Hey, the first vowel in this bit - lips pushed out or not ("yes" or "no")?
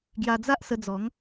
no